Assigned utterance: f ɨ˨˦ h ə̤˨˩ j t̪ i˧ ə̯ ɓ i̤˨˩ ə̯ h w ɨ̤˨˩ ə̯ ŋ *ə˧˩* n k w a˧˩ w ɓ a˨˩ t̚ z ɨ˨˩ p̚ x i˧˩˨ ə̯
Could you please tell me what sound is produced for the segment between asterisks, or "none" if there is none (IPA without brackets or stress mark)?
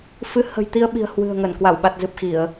ə˧˩